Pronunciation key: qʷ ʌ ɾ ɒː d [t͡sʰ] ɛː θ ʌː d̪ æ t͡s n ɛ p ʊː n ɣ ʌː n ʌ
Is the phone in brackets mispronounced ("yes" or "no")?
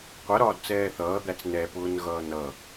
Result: yes